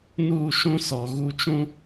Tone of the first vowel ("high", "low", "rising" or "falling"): falling